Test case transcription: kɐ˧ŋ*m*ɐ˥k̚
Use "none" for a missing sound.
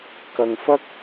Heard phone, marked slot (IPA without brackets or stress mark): f